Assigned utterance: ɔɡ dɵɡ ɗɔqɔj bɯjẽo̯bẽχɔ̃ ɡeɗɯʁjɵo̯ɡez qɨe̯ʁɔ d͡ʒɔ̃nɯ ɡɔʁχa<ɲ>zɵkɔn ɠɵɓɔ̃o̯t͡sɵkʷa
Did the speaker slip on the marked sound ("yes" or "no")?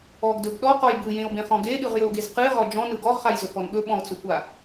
yes